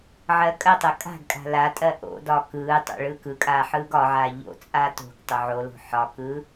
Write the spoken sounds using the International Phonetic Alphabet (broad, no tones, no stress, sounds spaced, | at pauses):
ʕ ɜ kʼ ɜ tˤ ɜ kʼ a̤ ɡ kʼ a̤ l a tʼ ɜ ʔ o̰ d ɒ k ɯː tˤ o̰ ɭ ɯ k ɯ kʼ aː ħ ɯː ɡ ɒ ʕ aː ʎ o̰ t͡sʼ a t o̤ ɡ tˤ o ʕ o l o̤ ħ ɒ k ɯː